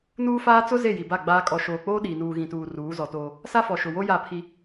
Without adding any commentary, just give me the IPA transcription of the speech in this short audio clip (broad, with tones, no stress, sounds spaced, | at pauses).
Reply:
n uː˦ f aː˦ t͡s ʊ˦ z e˦˨ j i˨ b a˦˨ ɡ͡b aː˦ kʼ ɔ˨ ʃ oː˨ k͡p oː˦ ɗ iː˨ n uː˨ ɣ ĩ˨ t uː˨ r uː˨˦ z ɔ˨ t oː˦ | s a˦ f ɔ˨ ʃ ʊ˨ w o˦ j a˦˨ pʰ i˦